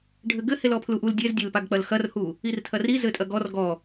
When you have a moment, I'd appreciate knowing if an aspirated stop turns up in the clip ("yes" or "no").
yes